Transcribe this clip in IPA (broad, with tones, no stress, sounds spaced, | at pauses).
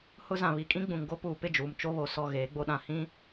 h ʊ˦ z ã˨ β i˨ kʼ ĩ˦ ɡ͡b ũ˨ ŋ ɡ o˦ p uː˨ p ɪ˦˨ d͡ʒ uː˨ m t͡ʃ o˦ β o˨ s ɔ˦˨ ɣ eː˨˦ ɡ͡b o˦ ɗ ã˨ h ĩ˦